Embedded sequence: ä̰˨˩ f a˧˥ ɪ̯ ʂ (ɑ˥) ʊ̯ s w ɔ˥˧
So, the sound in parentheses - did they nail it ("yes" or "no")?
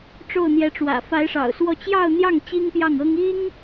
no